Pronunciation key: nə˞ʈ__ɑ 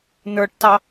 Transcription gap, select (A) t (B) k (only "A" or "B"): A